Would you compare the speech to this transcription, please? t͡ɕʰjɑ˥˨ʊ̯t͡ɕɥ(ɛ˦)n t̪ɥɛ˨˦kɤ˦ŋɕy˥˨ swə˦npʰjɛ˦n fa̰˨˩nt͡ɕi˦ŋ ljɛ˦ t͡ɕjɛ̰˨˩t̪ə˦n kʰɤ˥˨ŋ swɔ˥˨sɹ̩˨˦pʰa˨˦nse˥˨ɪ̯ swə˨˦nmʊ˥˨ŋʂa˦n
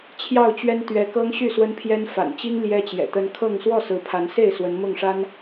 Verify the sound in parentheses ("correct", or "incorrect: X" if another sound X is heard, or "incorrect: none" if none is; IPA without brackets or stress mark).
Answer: correct